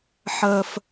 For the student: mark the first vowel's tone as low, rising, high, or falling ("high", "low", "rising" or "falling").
high